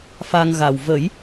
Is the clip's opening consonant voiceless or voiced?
voiceless